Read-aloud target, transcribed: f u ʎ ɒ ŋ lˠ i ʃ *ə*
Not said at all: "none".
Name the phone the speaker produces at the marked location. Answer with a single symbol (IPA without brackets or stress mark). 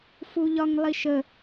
ə